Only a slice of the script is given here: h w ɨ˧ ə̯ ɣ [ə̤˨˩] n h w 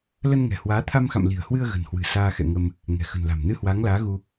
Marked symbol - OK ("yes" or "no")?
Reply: yes